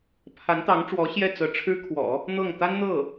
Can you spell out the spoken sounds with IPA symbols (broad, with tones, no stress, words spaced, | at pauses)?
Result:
pʰa˧˥nt̪ɑ˧˥ŋʈ͡ʂwɔ˧˥ ɕjɛ˥˩t͡sɤ˧˥ ʈ͡ʂʰɻ̩˥ kʰwɔ̰˨˩˦ | n̪ɤ˥˩ŋ t̪a˥nn̪ɤ˥˩